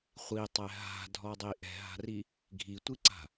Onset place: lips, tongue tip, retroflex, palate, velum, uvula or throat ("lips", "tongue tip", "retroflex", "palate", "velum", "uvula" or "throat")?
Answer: uvula